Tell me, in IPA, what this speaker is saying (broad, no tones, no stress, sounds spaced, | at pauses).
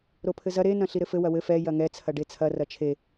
ɾ o pʰ ɘ z ɐ ɾ e n ɐ̃ ɬ i ɾ ɘ f ɘ w ɐ w ɘ f ɛ j ɐ ŋ ɛ t͡sʰ ɐ ɖ e t͡sʰ ɐ r ɐ t͡ʃʰ e